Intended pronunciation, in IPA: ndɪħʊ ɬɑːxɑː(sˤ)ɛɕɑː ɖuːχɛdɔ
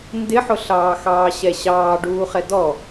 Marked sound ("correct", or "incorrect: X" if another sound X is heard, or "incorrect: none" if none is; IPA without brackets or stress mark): incorrect: ɕ